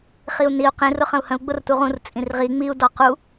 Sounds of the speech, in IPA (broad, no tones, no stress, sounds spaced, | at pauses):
χ i u̯ n i u̯ q ĩ r ʊ χ ə̃ u̯ h ə̃ u̯ ɡ͡b ʊ r t u ʁ ũ r t͡sʼ ĩ r ʁ i ŋ͡m i u̯ d ɔ q u